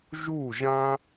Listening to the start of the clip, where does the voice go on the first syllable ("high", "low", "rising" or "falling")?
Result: falling